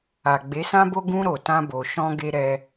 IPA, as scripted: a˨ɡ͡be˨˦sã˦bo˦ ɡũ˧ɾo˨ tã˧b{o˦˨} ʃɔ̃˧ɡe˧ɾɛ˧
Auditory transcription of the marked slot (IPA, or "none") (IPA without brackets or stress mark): o˨